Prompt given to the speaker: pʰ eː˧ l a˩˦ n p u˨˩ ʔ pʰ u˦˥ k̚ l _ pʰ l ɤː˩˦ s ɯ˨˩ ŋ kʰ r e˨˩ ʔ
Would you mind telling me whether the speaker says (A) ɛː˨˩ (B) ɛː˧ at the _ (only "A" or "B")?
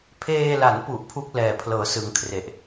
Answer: A